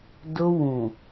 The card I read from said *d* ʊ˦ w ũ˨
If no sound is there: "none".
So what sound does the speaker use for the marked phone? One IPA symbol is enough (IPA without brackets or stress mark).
d